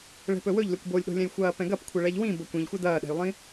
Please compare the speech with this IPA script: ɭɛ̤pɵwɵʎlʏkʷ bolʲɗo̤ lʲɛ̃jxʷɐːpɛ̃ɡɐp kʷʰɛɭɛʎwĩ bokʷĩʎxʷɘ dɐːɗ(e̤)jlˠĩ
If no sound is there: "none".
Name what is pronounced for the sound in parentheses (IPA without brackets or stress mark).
ɛ̤